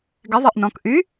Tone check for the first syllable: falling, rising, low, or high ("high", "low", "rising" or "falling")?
rising